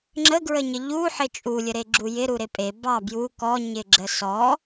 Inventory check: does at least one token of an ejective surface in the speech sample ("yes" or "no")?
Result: yes